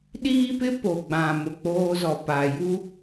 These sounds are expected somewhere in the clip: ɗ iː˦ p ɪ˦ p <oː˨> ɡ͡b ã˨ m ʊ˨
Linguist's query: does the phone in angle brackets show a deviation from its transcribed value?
yes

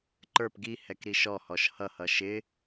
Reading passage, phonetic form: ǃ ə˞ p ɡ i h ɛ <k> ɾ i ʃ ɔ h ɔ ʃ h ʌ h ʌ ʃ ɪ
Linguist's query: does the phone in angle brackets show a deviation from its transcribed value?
no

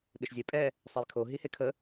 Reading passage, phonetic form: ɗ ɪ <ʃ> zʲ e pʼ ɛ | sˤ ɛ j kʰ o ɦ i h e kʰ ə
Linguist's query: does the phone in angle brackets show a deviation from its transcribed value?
no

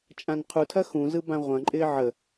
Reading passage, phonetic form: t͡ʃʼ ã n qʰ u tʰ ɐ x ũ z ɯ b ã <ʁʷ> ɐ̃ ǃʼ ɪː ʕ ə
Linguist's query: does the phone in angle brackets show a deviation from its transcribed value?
no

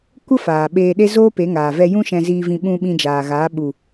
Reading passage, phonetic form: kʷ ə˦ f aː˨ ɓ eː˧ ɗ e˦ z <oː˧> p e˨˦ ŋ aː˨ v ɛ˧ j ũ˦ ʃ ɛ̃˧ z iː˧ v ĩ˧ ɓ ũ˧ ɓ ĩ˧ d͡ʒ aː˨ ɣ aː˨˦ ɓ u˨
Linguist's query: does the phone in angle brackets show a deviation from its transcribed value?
yes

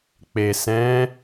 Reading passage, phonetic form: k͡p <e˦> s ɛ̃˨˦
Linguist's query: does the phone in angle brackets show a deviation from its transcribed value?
yes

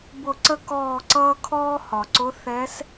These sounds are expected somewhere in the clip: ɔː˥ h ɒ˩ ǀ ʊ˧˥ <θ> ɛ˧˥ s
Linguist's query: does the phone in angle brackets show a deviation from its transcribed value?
no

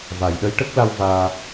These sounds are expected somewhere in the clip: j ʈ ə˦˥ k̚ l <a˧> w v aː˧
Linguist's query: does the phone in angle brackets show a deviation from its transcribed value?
no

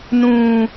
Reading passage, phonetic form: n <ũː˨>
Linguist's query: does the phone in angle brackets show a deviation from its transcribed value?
no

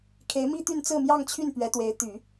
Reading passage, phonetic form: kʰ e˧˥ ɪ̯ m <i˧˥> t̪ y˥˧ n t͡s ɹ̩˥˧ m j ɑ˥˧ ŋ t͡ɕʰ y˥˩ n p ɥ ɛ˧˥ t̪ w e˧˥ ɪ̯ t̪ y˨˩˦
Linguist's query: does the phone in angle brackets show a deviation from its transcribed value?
yes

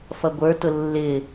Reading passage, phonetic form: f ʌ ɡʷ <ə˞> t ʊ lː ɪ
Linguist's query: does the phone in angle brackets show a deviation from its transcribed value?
no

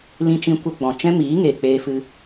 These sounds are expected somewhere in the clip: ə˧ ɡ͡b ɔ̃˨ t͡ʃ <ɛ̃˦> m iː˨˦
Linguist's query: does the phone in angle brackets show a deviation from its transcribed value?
no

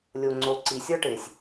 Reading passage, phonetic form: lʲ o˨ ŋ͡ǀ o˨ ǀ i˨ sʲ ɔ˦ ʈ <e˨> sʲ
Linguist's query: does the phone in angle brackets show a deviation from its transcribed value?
no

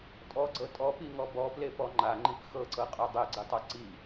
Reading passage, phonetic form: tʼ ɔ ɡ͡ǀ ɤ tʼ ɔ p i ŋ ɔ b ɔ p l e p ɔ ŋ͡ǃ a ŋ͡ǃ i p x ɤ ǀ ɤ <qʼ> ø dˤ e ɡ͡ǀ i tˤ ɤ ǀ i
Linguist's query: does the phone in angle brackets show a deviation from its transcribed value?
no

